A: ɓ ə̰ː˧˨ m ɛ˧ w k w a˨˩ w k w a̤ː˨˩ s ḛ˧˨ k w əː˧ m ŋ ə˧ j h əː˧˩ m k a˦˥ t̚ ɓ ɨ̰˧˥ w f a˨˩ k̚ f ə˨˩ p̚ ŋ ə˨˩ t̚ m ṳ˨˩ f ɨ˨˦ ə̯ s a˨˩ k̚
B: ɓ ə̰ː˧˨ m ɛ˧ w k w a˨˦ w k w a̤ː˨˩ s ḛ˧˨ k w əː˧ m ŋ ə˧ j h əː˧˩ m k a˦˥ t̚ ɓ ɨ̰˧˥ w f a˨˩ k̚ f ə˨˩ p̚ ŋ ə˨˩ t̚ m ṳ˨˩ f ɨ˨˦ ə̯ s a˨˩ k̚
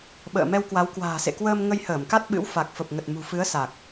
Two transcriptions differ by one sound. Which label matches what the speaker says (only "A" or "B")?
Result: B